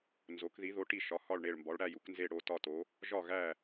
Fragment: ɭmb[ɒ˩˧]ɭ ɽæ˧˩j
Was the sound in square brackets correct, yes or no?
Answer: yes